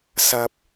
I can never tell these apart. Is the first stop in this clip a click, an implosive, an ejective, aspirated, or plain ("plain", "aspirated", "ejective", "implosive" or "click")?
plain